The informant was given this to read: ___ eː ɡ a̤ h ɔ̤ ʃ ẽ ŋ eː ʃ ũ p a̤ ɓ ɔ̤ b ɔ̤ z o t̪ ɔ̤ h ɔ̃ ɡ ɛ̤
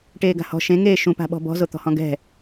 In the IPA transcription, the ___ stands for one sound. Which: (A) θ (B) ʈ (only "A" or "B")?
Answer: B